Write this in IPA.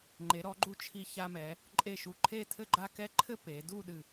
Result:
ŋ͡ǃ e˩˧ ɾ ɔ˩˧ ɡ͡ǃ u˧ t͡ʃʰ i˧ ç a˧ m ɛ˩˧ | ǃʼ e˧˩ ʃ u˧˩ ǃʰ e˥˧ tʰ ɘ˥˧ ɡ͡ǃ a˥˧ k ɛ˥˧ ǃʰ ɘ˥˧ p e˩˧ d u˥˧ ɗ ɨ˧˩

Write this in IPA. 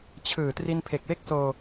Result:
t͡ɕʰ ɯː˨˩ t r i˧ n pʰ e˨˩ k̚ w e˥˩ k̚ s oː˧

